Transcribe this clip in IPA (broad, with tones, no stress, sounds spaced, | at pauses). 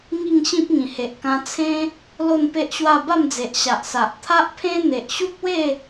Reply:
ŋ i˥˧ ŋ ɕ ĩ˦ p̚ ŋ ĩ˨˩ h e˨ ʔ k ã˧ t͡sʰ ẽ˦ | l o˥˧ n p e˦ ʔ ɕ w a˥˧ b a˥˧ m d͡z e˨ ʔ ɕ a˨ ʔ s a˨ ʔ t̪ʰ a˦ ʔ pʰ ẽ˦ n̪ e˨ ʔ ɕ u˦ k̚ w e˥˧